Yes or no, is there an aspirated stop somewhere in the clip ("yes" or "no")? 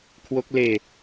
yes